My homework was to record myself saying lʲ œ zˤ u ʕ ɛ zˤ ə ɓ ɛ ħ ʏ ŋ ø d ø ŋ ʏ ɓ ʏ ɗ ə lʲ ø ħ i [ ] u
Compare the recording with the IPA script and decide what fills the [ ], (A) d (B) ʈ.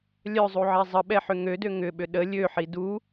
A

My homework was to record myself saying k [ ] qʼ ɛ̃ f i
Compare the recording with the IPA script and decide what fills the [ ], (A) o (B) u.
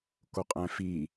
A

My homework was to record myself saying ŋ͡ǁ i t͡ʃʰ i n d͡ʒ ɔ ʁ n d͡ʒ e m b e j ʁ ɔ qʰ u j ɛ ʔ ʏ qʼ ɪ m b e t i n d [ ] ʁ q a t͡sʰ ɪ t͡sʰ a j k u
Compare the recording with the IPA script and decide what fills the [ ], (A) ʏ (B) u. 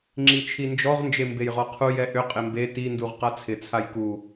B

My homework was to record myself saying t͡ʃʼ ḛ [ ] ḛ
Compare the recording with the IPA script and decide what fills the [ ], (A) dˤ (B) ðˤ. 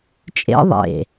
B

